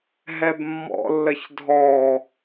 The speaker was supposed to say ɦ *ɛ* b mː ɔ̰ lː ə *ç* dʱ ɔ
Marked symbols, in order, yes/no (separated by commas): yes, yes